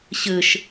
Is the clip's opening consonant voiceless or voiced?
voiceless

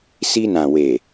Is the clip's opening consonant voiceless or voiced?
voiceless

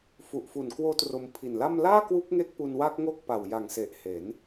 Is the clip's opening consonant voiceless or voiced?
voiceless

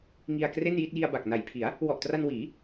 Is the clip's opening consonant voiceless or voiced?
voiced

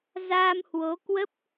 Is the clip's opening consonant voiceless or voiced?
voiced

